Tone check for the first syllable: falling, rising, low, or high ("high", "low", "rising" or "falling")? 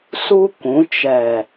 high